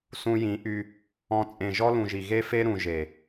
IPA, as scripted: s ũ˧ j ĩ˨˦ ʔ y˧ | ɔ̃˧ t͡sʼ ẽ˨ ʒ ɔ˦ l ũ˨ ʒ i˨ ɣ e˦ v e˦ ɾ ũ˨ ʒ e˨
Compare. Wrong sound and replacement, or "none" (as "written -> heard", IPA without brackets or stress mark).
v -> f